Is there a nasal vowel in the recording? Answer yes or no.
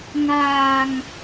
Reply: no